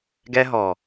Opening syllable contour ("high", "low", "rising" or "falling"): high